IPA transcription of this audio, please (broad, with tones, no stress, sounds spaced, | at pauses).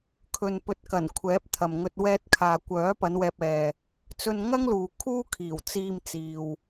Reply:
kʰ ɵ˨ n p ɵ˨˥ t̚ k ɐ˨˩ n kʷʰ ɛː˨˥ p̚ t̪ʰ ɐ˨ m ŋ ɵ˧ t̚ w ɛː˧ t̚ kʰ aː˨ kʷ œː˨˥ p ɐ˨˧ n w ɛː˧ p̚ ɛː˧ | t͡s ɵ˧ n ŋ ɐ˥ ŋ l uː˨ kʰ uː˥ kʰ iː˨˩ w t͡s iː˧ m t͡s iː˨ w